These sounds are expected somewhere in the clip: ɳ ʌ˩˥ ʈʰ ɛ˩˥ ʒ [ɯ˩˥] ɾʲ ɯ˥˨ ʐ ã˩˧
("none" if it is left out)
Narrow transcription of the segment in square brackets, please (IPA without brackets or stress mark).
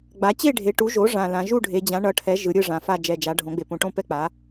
ɯ˩˥